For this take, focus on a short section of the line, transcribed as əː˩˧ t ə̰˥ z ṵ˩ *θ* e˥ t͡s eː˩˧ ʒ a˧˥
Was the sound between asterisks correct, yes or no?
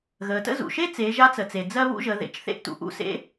no